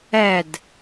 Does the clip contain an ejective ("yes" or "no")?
no